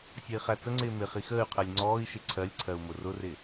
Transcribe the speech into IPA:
sʲ ʌ i̯ χ æ t͡s ə ŋ͡ǀ ɪː m ɪ χ i x əː y̯ qʰ ɜ lʲ ŋ͡ǀ ɔː i̯ ʃ ɪ ǀʰ ɜ lʲ ǀʰ ɜ u̯ m ʊ r ʊ r ɪ

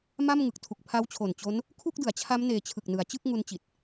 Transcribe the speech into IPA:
m a˥˩ m ŋ ɯ˨˩ k̚ tʰ u˨˩ k̚ pʰ a˦˥ w t͡ɕʰ o˨˩ n t͡ɕ o˦˥ n | kʰ u˥˩ k̚ d ɯ˩˦ a̯ t͡ɕʰ a˦˥ m n eː˧ t͡ɕʰ ɯ˨˩ k̚ n ɯ˩˦ a̯ t͡ɕ ɯ˥˩ k̚ ŋ u˦˥ n t͡ɕ i˨˩ t̚

